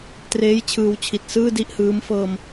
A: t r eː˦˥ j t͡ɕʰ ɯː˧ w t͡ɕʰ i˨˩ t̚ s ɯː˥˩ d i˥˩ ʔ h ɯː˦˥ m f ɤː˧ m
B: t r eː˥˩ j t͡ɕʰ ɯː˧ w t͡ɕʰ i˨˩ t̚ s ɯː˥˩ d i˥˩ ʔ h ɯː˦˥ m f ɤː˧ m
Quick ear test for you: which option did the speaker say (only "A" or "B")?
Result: A